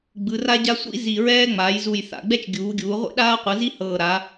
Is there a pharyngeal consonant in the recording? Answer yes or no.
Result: no